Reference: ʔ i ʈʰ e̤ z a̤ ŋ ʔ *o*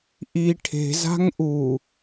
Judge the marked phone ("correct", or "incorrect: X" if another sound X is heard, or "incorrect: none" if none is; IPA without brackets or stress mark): incorrect: u